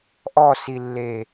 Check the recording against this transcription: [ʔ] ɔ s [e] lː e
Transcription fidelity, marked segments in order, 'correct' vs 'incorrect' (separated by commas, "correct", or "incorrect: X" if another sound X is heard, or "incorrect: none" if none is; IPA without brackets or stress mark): correct, incorrect: i